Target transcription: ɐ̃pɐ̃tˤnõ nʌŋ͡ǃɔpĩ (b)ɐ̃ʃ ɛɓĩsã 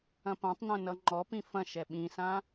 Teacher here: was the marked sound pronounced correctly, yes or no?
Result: no